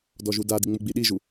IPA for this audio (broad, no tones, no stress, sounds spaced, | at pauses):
d ɔ ʒ u d a d i ŋ͡m u ɡ͡b i ɗ i ʒ u